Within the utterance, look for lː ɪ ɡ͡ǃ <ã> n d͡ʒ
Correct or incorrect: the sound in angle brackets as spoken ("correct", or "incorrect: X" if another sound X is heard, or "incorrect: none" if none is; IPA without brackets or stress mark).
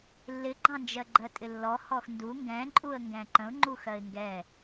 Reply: incorrect: ɑ̃